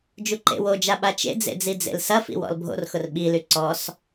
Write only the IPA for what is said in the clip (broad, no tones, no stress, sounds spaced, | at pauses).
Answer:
d͡ʒ u ǃ ḛ w o d͡ʒ a ɓ a t͡ʃ ḛ d͡z ḛ d͡z i d͡z ḛ l s ɐ f ḭ w ɔ̰ l bʱ o̰ r x ʊ r ɓ i l y ǀ ɔ s